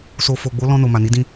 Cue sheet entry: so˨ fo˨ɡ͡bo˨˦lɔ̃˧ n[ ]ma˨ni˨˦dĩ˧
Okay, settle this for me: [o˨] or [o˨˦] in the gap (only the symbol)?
o˨